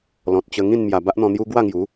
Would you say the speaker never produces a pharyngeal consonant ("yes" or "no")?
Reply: yes